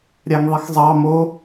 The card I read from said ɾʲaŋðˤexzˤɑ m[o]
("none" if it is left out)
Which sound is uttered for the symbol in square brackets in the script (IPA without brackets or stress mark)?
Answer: o